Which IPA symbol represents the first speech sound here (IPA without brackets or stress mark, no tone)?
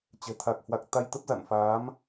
t͡ɕ